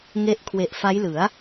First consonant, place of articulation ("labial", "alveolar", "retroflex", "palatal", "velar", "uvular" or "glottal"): velar